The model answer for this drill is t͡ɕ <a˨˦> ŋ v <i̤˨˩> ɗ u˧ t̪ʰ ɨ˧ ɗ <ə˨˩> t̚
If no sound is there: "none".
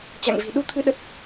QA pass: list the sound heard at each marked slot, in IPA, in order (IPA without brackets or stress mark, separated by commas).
a̰˧˨, i̤˨˩, ə˦˥